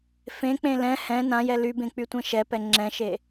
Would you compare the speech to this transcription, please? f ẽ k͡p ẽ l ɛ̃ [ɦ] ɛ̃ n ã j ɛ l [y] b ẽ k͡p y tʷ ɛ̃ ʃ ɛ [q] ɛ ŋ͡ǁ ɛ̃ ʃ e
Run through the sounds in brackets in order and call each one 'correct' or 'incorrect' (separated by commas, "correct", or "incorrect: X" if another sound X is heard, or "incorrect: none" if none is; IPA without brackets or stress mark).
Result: incorrect: h, correct, incorrect: p